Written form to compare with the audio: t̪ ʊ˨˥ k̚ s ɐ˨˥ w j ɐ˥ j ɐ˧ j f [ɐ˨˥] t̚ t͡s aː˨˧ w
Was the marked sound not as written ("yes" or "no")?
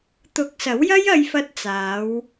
yes